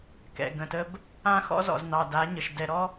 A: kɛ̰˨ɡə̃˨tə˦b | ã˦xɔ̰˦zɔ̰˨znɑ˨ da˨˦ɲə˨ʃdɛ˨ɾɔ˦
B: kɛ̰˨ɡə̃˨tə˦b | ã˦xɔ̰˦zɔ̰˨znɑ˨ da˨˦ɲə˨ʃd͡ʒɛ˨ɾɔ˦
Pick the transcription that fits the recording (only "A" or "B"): A